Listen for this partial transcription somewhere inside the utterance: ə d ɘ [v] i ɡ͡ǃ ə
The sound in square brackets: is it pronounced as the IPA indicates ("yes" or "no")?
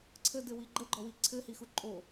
no